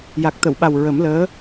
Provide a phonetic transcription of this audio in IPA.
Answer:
ja˨˩k̚t̪ə˨˩˨wɓa˨˩w ɹə˨˩˦mləː˧˥

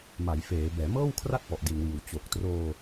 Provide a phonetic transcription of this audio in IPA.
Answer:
ma˩˦jfeː˩˦ bɛː˩˦mɤː˥˩wkʰra˥˩t̚pɔ˨˩ʔ di˨˩nwiː˨˩w t͡ɕo˨˩k̚troː˧

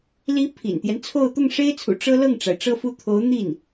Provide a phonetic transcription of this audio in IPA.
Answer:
li˧˥ pʰḭ˨˩nt̪jɛ˦nt͡sʰo˥˧ʊ̯ t̪ʊ˥˩ŋʂe˥ɪ̯t͡sʰṵ˨˩ ʈ͡ʂɤ˥ lɤ˥˩ŋʈ͡ʂa˩ɪ̯ʈ͡ʂɤ˥˧fu˥˩ t̪ʰo˧˥ʊ̯n̪i˥˩n

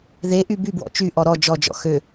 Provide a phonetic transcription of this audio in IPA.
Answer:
ðeʔy bybwɔ̰ t͡ʃyʔɔ ɾɔ d͡ʒɔd͡ʒɔ̰ xø

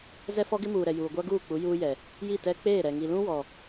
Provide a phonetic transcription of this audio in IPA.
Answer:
zɛ˦fɔ˦ɡɪ˦ muː˨ɾɛ˨ juː˨ɡʷa˦ɡuː˦˨k͡pu˨˦ juː˦jɛ˨ | ji˦˨ tɛ˦ k͡peː˦˨ɾɛ˨ ŋi˨lũ˦ wɔ˨

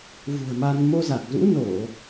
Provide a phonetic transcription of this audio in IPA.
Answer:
vṳ˨˩ə̯ma˧n mo˧za˨˩k̚zṵ˧˥ no˧˩˨

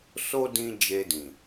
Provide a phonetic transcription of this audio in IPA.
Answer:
so˦ dĩ˧ d͡ʒe˧dĩ˨

